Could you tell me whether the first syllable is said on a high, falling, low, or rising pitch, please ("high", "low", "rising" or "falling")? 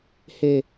low